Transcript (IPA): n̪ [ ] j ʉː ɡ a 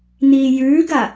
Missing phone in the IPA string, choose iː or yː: iː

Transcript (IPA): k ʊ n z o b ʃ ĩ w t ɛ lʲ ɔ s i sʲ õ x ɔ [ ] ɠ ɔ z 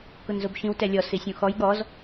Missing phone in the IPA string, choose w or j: j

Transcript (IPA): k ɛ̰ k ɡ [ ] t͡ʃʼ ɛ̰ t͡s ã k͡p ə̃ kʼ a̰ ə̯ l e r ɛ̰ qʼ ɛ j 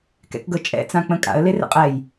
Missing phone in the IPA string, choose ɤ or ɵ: ɤ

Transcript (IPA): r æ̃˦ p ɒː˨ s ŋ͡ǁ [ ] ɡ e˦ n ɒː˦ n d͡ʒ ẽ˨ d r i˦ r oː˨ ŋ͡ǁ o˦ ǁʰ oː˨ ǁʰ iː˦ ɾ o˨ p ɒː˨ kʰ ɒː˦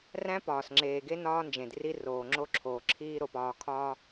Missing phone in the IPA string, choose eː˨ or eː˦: eː˨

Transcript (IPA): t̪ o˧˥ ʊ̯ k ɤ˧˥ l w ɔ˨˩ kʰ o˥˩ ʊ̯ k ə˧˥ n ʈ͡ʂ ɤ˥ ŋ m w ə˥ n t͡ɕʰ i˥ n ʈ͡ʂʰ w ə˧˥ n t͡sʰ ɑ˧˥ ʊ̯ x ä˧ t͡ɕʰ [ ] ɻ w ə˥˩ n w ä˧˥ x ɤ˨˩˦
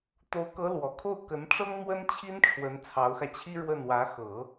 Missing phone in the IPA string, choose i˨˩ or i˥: i˥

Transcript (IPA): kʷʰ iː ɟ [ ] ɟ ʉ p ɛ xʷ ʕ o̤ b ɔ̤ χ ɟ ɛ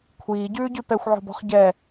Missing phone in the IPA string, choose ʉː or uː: ʉː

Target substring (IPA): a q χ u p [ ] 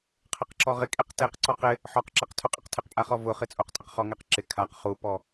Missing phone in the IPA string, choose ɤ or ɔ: ɔ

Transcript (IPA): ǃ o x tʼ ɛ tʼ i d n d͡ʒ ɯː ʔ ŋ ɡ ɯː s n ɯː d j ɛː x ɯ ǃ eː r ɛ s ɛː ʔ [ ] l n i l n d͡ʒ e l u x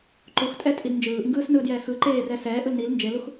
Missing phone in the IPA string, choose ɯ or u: ɯ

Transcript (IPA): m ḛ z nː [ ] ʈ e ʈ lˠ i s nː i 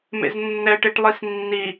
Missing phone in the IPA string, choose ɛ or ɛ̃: ɛ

